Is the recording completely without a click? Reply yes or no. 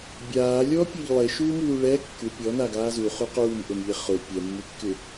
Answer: yes